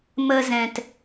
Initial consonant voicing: voiced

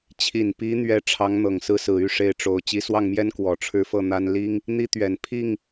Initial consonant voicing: voiceless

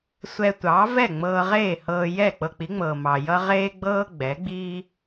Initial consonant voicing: voiceless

